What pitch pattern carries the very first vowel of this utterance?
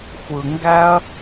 low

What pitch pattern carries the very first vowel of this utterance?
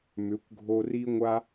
rising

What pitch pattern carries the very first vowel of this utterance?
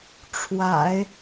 low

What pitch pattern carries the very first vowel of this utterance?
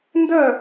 falling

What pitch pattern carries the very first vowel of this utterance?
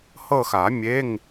falling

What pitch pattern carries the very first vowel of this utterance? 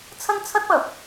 high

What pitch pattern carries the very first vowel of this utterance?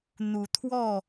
rising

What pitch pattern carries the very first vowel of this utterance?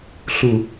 low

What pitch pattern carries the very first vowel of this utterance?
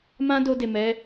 high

